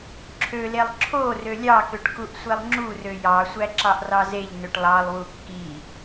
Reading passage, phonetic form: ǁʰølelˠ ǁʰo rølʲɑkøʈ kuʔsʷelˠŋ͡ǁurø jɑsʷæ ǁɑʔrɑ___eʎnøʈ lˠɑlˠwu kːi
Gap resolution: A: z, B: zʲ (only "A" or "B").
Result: A